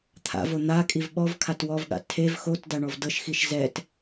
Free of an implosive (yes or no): no